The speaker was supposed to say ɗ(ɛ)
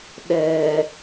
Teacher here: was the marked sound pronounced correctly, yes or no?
yes